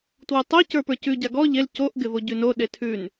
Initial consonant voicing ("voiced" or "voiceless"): voiceless